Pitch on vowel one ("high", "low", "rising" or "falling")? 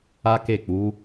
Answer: high